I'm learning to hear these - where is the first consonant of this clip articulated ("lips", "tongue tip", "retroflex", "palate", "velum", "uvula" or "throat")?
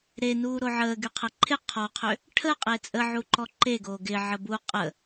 tongue tip